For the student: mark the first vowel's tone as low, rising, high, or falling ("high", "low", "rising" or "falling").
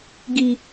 low